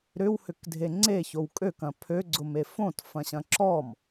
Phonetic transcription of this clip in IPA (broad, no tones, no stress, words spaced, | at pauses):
ɾʏwhʏkdʱe ŋ͡ǀeçow kʼøkɐ̃ pʰøɡ͡ǀʊme fõtfɐ̃ɕɐ̃ ǁɔm